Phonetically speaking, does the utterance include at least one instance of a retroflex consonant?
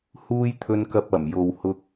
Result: no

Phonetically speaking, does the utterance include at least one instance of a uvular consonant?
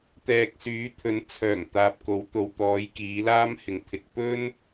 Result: no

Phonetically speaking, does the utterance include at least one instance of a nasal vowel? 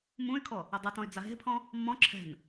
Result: yes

